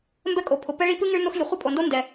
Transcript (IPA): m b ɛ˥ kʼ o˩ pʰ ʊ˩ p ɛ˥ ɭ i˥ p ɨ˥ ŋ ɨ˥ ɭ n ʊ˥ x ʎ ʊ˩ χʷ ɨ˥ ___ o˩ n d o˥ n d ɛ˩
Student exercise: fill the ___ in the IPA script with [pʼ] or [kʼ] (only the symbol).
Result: pʼ